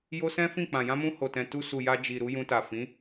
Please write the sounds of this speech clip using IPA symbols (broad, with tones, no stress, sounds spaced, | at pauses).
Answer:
j o˧ s ɛ̃˦ f ĩ˦˨ k͡p ã˨ j ã˧ m ũ˧ h o˨ t ɛ̃˨ t u˧ s u˨ j a˧ d͡ʒ i˨ ɾ u˨˦ j ũ˧ t a˨ f ĩ˨˦